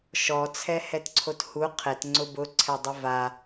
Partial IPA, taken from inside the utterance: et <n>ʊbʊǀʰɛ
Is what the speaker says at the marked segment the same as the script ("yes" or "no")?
no